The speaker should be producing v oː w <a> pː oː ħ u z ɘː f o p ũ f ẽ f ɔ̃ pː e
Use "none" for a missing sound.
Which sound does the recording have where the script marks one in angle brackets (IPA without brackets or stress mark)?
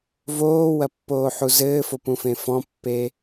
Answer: ɐ